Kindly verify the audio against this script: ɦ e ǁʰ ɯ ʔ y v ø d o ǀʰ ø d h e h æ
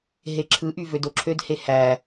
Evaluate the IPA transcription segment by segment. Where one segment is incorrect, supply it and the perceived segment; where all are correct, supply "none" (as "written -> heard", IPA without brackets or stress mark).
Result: ǀʰ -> ǁʰ